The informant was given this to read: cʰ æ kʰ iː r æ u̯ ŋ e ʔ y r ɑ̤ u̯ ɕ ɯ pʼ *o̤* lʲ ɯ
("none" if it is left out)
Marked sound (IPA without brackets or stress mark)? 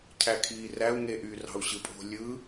o̤